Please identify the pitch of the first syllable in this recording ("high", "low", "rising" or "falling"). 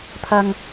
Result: low